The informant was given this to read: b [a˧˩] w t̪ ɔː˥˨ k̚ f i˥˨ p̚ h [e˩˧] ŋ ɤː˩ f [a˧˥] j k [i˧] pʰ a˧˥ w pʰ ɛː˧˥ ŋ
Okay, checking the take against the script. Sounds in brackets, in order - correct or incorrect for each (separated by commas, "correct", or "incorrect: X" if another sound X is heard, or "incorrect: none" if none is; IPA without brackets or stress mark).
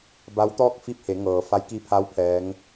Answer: incorrect: a˧˥, correct, correct, correct